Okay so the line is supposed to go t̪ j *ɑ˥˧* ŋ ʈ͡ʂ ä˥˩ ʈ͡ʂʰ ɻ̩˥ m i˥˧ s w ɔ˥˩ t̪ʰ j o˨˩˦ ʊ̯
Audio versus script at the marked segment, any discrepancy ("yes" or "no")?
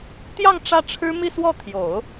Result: no